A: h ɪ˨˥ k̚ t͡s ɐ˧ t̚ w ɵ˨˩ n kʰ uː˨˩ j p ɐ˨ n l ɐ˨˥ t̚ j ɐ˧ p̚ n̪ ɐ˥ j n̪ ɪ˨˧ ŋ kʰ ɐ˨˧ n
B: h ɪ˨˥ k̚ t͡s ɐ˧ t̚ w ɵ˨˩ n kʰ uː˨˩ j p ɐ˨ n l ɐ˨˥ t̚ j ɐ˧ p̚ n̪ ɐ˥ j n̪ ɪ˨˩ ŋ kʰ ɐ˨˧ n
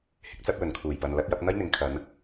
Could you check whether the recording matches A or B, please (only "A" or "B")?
A